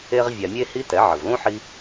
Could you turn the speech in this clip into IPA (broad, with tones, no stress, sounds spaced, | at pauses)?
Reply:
e˧ ʁ vʲ a˨ mʲ e˦ h i˦ t ɛ˨˦ ʕ ə˨ v l ũ˦ ħ i˧